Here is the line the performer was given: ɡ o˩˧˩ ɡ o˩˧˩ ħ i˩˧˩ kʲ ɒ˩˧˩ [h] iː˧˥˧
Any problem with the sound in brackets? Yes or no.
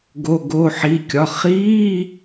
yes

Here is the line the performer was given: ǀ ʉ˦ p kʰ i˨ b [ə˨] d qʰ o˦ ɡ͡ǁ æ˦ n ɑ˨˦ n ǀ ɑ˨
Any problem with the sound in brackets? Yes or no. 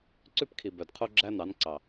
yes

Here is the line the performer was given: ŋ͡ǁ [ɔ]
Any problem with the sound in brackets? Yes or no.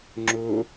yes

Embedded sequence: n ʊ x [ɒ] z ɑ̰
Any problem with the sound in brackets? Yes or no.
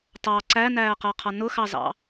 yes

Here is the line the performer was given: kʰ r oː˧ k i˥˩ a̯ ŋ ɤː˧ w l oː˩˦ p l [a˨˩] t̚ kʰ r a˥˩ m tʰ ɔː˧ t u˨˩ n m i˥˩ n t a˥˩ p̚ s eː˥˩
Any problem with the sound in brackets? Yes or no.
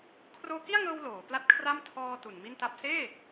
yes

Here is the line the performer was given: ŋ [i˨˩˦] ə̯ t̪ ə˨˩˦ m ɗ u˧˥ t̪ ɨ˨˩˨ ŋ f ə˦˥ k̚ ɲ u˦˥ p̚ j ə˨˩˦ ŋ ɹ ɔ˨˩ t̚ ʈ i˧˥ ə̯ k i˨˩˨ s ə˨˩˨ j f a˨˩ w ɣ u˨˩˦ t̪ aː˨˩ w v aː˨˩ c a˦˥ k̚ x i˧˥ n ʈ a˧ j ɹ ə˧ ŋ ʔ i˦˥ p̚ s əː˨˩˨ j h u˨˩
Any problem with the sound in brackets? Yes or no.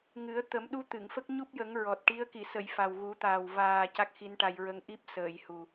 yes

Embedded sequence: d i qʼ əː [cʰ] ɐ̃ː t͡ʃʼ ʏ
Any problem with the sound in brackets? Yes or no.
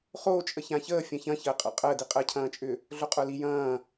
no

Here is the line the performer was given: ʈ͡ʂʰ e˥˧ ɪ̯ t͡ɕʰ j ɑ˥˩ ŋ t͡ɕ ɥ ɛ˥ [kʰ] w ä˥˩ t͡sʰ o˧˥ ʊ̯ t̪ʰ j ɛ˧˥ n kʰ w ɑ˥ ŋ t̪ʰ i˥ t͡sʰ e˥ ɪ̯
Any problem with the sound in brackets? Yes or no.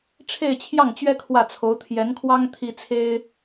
no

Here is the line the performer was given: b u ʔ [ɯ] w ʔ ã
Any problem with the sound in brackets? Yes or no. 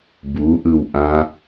no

